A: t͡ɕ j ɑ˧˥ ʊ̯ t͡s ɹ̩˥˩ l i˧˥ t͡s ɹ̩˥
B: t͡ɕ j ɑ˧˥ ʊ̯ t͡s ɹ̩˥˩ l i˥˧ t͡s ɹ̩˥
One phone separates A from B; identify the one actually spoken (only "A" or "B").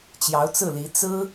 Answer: A